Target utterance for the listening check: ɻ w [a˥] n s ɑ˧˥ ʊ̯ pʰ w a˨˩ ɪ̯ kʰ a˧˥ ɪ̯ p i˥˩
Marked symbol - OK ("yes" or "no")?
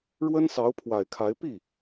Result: no